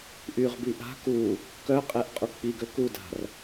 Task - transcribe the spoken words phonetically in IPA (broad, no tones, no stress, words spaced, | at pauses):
ʔyʁbi ʔa̤ ku | kœqʼɛʔ qʼuk͡piɡø kuda̤r